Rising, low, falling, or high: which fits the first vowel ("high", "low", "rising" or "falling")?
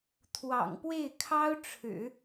low